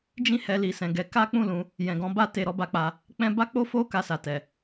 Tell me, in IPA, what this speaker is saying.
d͡ʒ ĩ˦ h ɛ˧ l i˨ s ɛ̃˨ ɡ ɛ˨˦ k a˦ k͡p ũ˦˨ l ũ˧ | j ɛ̃˨ ɡ ɔ̃˨˦ b a˦ t e˧ ɾ ɔ˧ b a˧ k͡p a˧ | k͡p ɛ̃˦ b a˦ k͡p o˦ f o˦ k a˧ s a˨ t ɛ˨

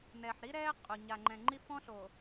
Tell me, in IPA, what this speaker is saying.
n ɛː˨ ħ ɾ i˦ ɾ ɛː˦ qʼ o˨ ɲ a˨ ŋ͡ǃ ɛ̃˨ ŋ͡ǃ i˦ f ɔ̃˦ ɬ o˨

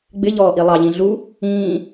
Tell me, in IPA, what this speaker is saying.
ɡ͡b ɪ ʎ ɔː ʔ i lˠ ɑ ʎ ĩ ɮ u | ĩː

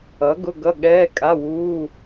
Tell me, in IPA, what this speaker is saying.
ʌ˩˥ ɡ ʊ˧˥˧ ɡ ʌ˧˥˧ ɠ ɛː˧˥˧ kʼ a˧˥˧ w uː˧˥˧

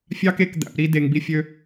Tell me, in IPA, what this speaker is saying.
fʲ ɑ˦ k e˦˨ k d̪ æ̰˨ p ɾ i˧ d e˨ ŋ b i˧ fʲ ø˧

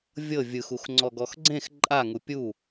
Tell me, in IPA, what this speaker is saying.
vʲ ɤ vʲ ɯ x u x ŋ͡ǀ ɔ ɡ ɔ x ɡ͡ǀ ẽ x ǃʼ a ŋ u pʲ u

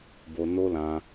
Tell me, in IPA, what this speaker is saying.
b o˧ n o˦ l ã˧

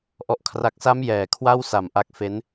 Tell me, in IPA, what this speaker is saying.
ʔ ɔ˨˩ ʔ kʰ r a˨˩ k̚ s a˦˥ m j ɛː˨˩ kʰ w a˥˩ w s a˨˩ m ʔ a˦˥ k̚ f e˦˥ n

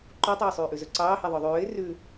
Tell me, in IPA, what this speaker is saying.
ǃ o tˤ øː sˤ yː ʔ ʉ z ɵ ǀ ɑː h e ðˤ œ ðˤ ʉː ɪ̯ r ʉ

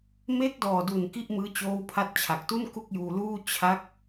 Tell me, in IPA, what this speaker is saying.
m e˦˥ k̚ d ɔː˨˩ d u˨˩ n k i˥˩ ʔ m ɯː˦˥ t͡ɕ oː˦˥ w pʰ a˦˥ t̚ t͡ɕʰ a˨˩ k̚ t u˥˩ n k u˥˩ k̚ j uː˧ l uː˥˩ t͡ɕʰ a˦˥ k̚

